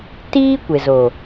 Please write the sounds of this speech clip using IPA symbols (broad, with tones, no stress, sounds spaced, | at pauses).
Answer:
t iː˦ kʷ e˨ z o˨